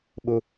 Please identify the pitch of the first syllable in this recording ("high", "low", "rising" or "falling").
high